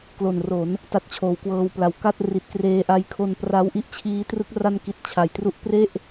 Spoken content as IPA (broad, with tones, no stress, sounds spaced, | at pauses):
k l o˨˩ n r o˩˦ n | t a˦˥ t̚ t͡ɕʰ oː˩˦ w k w ɤː˧ w p l a˨˩ w k a˥˩ t̚ r i˨˩ t̚ k r eː˧ ʔ a˦˥ j kʰ o˧ n p r a˦˥ w ʔ i˦˥ ʔ t͡ɕʰ iː˦˥ t r ɯ˦˥ k̚ r a˧ n k i˨˩ t̚ t͡ɕʰ a˨˩ j t r u˥˩ ʔ p r e˥˩ ʔ